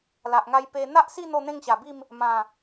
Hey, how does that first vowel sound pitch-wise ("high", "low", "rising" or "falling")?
low